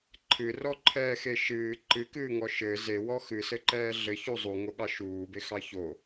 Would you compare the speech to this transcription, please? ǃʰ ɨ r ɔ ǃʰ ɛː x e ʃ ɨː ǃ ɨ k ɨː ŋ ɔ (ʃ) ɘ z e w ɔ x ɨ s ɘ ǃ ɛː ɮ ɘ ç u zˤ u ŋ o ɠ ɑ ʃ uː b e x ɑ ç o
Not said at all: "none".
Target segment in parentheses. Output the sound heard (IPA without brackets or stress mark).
ʃ